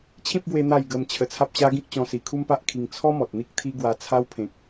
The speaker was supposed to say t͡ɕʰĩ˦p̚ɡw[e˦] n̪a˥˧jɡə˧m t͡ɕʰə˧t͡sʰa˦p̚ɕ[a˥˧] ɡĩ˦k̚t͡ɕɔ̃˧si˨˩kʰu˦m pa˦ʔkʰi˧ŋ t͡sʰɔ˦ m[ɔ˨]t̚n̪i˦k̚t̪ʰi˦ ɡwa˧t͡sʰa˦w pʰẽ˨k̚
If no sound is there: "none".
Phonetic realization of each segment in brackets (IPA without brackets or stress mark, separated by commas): e˧, a˦, ɔ˨